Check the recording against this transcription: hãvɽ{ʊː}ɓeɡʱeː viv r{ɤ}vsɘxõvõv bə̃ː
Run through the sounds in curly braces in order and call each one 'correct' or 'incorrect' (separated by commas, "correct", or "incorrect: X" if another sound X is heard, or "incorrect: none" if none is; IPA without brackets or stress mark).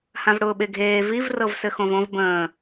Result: correct, correct